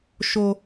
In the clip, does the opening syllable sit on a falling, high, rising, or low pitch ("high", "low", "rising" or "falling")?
high